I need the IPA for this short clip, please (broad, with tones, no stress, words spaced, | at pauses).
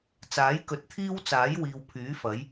t͡saː˨˥jkɵ˨˥t̚t̪ʰiː˥wt͡saː˨˥j wiː˨wpʰyː˨˥fɐ˨˥j